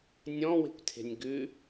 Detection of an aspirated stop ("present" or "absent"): present